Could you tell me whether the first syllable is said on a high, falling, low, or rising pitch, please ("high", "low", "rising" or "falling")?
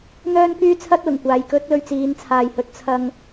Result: high